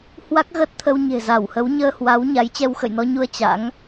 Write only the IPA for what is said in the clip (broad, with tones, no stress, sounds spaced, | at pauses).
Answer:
h w a˦˥ k̚ ɣ əː˦˥ t̚ t̪ʰ ə˧ w ɲ e̤˨˩ z a˧˩ w h ə˨˦ w ɲ əː˧ h w a˨˦ w ɲ a˨˦ j t͡ɕ ɛ˧ w x ə̰˧˨ j n ɔ˧ ɲ u˧ ə̯ t͡ɕ a̰˧˥ ŋ